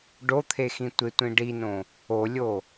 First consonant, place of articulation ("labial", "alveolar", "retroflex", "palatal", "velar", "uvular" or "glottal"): retroflex